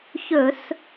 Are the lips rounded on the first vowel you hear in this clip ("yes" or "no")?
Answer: yes